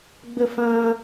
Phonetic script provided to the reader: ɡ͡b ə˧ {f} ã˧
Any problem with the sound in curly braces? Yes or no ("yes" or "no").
no